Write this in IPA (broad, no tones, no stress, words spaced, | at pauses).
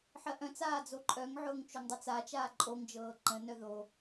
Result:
ħɜʔœ̃t͡saː d͡zoǃʼœŋʕʊːŋ t͡ʃoŋdˤʊt͡sat͡ʃaː ǃʼoŋd͡ʒɤː ǃə̃nœ ðo